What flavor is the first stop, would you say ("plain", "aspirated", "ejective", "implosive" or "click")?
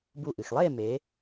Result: plain